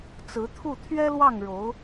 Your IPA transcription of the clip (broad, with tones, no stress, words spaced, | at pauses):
t͡sɹ̩˧˥ t̪ʰu˥˩ t̪ʰɥɛ˥lwɑ˥˩ŋɻo˧˥ʊ̯